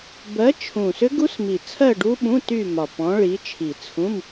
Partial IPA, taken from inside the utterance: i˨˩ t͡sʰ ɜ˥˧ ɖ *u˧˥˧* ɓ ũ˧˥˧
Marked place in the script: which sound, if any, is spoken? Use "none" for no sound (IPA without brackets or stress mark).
u˦˥